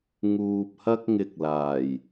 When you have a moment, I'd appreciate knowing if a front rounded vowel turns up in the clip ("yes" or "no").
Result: no